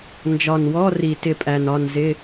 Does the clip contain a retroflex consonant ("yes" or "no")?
no